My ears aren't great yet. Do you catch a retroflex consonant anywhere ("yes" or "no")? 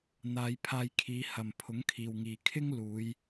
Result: no